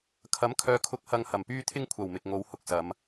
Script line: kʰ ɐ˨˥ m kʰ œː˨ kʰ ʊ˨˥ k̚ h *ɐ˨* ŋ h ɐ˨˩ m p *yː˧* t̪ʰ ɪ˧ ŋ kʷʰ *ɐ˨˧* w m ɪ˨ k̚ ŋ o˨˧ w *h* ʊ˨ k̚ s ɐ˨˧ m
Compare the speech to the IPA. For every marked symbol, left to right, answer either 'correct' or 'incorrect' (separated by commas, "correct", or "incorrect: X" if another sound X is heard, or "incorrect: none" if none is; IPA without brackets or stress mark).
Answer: correct, correct, incorrect: ɐ˨˩, correct